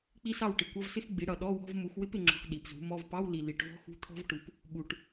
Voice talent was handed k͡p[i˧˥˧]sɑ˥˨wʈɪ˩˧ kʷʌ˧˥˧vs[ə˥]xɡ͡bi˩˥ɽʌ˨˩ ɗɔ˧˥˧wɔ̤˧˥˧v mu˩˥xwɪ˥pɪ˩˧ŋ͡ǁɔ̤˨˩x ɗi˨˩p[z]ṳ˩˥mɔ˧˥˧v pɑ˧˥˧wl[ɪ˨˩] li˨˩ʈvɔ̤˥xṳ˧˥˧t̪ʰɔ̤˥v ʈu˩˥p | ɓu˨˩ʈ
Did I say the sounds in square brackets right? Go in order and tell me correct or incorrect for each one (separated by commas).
incorrect, incorrect, correct, incorrect